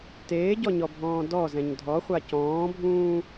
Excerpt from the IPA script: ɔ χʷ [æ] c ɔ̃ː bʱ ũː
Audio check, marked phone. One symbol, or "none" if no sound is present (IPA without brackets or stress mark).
a